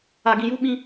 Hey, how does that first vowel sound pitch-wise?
low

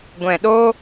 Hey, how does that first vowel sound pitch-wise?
low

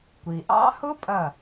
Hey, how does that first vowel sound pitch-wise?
low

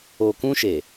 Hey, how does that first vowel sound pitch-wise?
low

